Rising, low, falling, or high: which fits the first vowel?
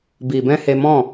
low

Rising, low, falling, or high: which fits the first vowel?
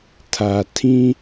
low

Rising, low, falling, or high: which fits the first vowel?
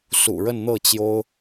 low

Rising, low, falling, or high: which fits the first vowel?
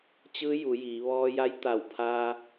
rising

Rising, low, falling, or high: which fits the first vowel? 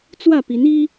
falling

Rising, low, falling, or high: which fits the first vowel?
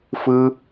high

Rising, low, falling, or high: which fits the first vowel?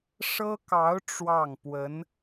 high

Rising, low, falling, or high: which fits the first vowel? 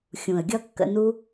low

